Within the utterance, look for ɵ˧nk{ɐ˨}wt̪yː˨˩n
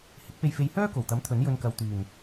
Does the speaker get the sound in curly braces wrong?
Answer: no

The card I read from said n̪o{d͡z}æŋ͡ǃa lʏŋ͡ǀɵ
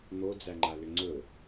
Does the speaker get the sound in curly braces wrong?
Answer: no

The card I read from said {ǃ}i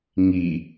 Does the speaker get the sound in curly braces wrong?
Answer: yes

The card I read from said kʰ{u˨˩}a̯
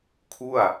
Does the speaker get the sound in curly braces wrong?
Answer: yes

